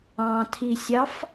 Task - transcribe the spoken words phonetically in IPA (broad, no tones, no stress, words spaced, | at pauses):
ɑ̃tʰisʲɑf